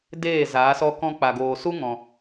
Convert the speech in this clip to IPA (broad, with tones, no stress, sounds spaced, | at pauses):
d eː˦˨ z aː˨˦ s ɔ˦ k ɔ̃˧ k͡p a˨ ɡ oː˨ s u˦ ŋ ɔ̃˨